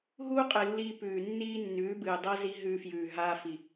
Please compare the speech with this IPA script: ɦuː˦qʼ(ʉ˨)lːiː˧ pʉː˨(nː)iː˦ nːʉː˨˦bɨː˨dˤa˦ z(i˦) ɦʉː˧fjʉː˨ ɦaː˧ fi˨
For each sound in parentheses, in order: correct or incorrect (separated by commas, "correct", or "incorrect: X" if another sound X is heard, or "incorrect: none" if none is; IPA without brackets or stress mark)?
incorrect: ɨ˨, correct, correct